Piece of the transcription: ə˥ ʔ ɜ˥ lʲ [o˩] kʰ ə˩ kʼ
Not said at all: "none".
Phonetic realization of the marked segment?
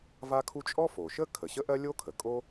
o˥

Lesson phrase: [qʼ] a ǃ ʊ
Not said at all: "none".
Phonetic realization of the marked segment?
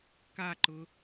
k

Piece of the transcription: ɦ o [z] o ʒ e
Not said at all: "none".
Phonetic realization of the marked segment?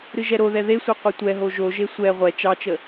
ʒ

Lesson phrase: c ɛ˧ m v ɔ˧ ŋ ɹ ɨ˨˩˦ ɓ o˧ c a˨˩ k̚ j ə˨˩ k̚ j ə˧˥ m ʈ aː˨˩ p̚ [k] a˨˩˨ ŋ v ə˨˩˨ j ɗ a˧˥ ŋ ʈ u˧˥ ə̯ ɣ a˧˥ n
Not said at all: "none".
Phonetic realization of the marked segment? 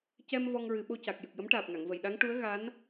ŋ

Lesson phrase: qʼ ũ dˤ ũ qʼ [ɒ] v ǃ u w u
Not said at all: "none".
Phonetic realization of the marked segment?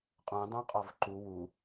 ɒ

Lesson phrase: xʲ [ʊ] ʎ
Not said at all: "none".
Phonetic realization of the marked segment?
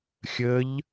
ə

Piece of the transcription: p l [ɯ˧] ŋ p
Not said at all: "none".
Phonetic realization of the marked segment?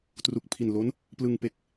ɯ˧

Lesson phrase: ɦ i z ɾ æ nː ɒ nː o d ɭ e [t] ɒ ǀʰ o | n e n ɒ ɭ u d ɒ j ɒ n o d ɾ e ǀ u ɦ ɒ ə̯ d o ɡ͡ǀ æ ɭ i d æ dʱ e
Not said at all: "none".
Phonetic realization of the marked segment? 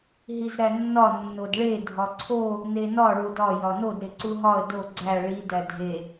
dʱ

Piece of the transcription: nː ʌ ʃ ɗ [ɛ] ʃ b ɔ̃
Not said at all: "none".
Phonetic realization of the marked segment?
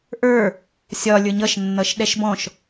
ɛ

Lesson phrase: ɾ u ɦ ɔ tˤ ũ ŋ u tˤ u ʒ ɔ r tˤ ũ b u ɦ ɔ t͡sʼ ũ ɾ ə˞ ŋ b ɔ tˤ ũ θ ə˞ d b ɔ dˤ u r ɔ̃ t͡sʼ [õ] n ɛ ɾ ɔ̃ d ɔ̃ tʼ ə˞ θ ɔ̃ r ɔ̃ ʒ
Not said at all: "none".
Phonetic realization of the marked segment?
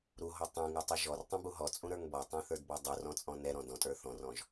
ɔ̃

